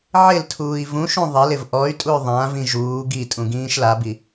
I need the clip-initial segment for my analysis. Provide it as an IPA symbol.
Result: ʕ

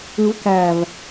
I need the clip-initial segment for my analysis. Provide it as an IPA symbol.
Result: ɯ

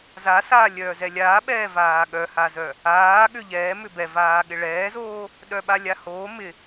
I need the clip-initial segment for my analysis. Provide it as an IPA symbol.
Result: z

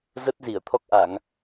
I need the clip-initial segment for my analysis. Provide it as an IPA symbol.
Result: z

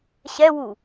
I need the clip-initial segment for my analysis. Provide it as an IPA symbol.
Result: ɕ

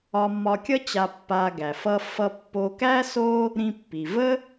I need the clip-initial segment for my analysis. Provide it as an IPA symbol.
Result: ɒ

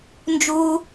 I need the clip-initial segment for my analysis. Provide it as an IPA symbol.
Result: n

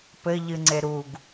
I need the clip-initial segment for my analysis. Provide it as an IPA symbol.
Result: p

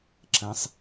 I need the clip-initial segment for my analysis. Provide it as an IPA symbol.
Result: ǁ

